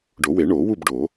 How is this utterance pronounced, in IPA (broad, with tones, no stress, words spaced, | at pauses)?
ɖo˨˩˦we˨˩˦ɳoː˨˩˦ wu˥˨b ɖo˨˩˦